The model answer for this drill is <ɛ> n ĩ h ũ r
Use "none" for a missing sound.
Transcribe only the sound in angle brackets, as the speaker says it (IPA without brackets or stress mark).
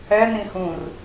ɛ